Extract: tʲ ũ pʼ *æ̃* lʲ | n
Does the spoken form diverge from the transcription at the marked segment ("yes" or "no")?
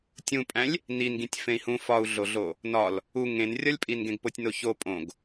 no